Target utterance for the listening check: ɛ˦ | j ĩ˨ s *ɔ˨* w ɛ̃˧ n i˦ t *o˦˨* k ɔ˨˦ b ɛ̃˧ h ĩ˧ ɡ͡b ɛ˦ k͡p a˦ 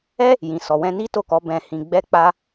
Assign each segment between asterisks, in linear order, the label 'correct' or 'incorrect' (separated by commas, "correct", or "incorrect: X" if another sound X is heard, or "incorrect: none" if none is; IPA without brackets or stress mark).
correct, correct